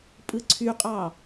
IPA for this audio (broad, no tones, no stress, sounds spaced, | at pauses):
pʼ ɯ ǀʰ y qʼ ɑ